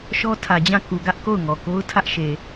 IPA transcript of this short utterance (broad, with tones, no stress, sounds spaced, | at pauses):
ʃ ɔ˦ tʰ ä˨ d͡ʑ ã˦˨ k u˨ ɡ ä˦ ʔ k o˦˨ ʊ̯ ŋ ɔ˨ k o˦ ʊ̯ tʰ ä˦ ʔ ʃ e˨